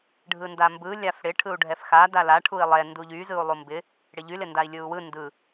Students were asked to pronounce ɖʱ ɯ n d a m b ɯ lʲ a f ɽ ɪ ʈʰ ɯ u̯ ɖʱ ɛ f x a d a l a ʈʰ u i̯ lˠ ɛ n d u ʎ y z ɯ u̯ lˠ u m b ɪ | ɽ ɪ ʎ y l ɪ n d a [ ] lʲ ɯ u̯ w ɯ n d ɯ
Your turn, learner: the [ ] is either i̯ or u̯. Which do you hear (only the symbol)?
i̯